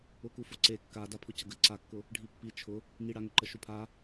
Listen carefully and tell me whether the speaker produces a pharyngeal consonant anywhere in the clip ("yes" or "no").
no